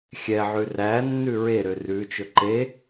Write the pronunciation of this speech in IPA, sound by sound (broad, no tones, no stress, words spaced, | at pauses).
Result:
xʲɛʕʉ ræ nːʉɹeɾø rʉt͡ʃɵ ǃe